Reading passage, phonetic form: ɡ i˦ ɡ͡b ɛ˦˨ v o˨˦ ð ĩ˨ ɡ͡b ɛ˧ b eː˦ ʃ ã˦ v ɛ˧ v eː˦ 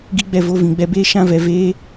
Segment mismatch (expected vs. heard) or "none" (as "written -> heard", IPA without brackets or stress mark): ð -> v